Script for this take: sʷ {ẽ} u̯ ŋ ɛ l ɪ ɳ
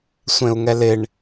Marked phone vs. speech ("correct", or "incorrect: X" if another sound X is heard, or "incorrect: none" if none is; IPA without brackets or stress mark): correct